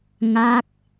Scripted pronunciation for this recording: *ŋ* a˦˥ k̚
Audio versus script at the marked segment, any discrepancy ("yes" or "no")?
no